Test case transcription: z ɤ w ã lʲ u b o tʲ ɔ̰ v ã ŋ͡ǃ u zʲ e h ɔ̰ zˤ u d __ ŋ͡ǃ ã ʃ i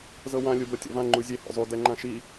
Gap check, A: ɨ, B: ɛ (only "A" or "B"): B